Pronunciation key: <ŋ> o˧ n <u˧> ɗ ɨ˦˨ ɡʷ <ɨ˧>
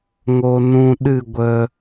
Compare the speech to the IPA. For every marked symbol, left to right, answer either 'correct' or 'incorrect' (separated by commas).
correct, incorrect, incorrect